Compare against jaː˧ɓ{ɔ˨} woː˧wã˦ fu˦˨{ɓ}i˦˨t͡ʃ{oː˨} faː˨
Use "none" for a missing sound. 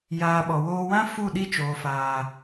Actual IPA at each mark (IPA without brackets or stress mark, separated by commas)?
ɔ˨, ɗ, oː˨